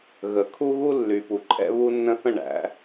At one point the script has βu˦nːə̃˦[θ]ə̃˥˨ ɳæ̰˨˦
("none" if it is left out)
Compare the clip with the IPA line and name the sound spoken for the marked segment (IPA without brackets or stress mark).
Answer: θ